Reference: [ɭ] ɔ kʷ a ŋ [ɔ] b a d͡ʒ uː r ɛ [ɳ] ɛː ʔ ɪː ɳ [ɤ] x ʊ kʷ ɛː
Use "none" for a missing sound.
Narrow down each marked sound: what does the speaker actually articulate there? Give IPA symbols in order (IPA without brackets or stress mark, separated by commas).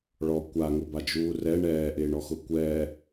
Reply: ɭ, ʊ, ɳ, ɔ